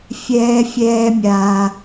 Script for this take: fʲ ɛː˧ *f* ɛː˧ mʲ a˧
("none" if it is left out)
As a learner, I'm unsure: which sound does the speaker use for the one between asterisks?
fʲ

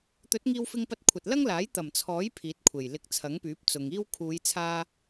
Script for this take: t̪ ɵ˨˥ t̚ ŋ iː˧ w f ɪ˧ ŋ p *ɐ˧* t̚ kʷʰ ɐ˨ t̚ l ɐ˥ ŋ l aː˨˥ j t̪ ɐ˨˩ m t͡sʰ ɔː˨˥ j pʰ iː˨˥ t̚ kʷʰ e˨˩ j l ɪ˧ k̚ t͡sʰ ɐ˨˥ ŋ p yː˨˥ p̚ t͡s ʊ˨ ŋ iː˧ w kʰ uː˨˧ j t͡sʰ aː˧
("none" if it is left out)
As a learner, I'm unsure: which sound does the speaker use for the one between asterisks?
ɐ˧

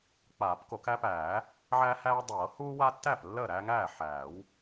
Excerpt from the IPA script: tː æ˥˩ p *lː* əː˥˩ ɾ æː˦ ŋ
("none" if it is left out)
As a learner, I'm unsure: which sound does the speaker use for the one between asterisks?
lː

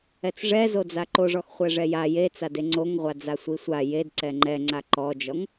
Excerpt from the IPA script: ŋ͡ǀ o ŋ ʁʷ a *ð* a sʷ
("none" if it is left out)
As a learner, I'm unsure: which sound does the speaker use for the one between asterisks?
d͡z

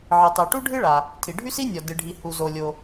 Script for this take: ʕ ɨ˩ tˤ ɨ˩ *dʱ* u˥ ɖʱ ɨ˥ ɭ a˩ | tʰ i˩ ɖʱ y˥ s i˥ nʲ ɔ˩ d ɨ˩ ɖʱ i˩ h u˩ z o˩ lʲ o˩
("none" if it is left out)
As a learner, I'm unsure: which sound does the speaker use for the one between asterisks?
ʈ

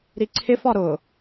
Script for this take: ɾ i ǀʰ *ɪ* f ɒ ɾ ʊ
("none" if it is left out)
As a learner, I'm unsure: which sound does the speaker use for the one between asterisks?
ɪ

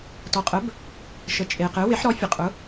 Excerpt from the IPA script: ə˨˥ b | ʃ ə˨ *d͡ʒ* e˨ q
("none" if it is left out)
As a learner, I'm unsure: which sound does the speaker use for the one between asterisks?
t͡ʃʼ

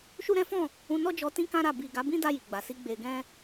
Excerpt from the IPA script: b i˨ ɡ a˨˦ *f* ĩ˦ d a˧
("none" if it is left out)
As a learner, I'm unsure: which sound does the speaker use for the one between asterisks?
b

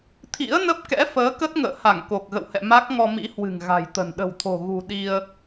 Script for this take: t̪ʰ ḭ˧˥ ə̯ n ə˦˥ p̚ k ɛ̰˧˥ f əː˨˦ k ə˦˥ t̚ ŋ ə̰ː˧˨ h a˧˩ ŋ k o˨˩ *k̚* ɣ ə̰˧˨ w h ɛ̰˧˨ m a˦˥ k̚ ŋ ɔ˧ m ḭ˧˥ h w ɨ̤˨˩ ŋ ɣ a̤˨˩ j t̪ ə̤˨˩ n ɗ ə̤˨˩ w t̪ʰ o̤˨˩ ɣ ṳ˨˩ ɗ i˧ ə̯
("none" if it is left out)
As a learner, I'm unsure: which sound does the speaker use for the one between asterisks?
k̚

